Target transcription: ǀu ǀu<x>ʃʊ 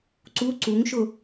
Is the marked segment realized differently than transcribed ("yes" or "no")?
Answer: yes